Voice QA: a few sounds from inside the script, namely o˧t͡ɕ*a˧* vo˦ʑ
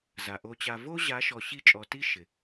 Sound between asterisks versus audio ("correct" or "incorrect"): correct